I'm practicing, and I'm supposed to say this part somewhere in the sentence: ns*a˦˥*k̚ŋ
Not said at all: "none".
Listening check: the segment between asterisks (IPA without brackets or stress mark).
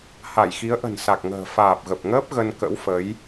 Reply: a˨˩